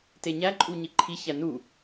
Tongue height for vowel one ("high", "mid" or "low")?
mid